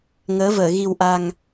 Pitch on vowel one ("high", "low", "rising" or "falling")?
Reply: rising